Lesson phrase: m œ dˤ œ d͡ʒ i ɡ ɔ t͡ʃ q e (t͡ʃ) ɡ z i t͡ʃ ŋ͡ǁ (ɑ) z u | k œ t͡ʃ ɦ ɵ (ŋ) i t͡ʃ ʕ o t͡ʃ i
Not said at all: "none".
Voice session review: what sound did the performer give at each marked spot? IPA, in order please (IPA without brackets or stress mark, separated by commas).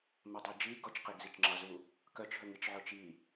none, ɑ, ŋ